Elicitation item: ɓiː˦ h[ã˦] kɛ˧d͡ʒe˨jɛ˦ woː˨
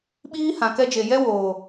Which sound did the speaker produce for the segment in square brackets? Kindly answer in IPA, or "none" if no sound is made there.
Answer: ã˨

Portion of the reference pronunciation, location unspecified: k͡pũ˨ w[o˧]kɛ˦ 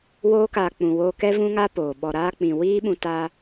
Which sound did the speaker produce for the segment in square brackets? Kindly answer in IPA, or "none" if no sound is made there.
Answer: oː˧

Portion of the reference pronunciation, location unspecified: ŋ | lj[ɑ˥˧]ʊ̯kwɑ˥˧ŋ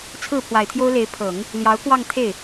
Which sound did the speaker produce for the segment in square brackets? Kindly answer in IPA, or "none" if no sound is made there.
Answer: ɑ˧˥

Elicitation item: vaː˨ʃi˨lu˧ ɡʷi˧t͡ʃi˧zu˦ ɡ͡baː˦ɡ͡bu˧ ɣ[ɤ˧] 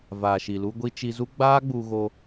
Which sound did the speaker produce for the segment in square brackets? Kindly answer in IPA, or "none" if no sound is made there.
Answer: o˧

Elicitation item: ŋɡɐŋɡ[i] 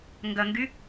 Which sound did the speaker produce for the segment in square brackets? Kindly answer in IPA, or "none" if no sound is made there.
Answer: y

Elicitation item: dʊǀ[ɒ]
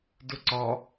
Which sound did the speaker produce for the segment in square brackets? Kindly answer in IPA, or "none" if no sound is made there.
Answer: ɒ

